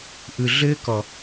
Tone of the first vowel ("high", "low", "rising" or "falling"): low